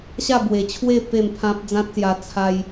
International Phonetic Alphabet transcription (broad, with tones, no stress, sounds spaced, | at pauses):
ɕ a˥˧ b w e˨˩ t͡ɕʰ w e˥˧ p e˥˧ m pʰ ã˦ p̚ d͡z ã˦ t̚ s j a˧ t͡sʰ a˧ j